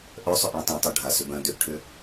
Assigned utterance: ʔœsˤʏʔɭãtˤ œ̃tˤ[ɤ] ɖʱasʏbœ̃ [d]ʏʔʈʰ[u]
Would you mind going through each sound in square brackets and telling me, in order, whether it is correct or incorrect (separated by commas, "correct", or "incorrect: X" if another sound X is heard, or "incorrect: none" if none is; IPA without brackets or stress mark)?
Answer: correct, correct, incorrect: ʏ